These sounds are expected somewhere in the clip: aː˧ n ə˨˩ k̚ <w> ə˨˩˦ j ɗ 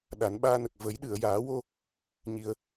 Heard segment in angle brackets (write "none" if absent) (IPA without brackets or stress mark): v